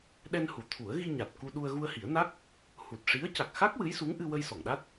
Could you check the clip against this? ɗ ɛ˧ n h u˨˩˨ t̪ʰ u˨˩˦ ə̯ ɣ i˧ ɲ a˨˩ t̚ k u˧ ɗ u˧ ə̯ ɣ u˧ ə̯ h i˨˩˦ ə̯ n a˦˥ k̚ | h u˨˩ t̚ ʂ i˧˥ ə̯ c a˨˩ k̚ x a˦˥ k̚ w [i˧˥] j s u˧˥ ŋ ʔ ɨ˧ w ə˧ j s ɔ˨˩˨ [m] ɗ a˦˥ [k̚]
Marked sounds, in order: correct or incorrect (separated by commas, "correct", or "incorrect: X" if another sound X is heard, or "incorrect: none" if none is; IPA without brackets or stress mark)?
incorrect: ɨ˧˥, incorrect: ŋ, incorrect: t̚